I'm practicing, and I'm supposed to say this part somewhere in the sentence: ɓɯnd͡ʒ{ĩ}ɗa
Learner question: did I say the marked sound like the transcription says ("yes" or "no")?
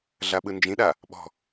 yes